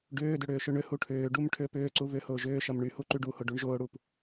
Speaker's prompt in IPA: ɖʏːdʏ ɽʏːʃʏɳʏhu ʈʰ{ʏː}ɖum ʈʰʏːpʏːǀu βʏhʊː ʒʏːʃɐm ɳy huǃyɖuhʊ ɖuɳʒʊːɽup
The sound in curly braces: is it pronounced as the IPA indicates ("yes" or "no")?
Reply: yes